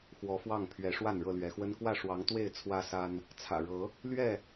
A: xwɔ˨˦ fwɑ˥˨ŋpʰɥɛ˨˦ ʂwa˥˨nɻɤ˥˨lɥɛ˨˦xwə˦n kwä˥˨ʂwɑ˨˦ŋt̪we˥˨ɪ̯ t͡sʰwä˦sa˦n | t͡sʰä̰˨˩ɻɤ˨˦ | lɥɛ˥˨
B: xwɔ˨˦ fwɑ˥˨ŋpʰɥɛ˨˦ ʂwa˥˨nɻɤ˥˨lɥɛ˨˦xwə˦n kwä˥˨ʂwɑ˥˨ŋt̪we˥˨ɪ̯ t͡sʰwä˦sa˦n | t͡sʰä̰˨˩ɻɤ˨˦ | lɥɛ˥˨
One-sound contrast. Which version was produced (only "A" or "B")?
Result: A